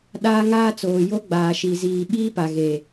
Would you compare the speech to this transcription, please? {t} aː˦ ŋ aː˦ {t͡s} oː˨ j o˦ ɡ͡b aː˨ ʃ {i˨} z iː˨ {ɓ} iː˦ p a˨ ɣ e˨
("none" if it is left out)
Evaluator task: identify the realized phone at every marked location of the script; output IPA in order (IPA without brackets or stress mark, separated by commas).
ɗ, t͡s, i˨, ɓ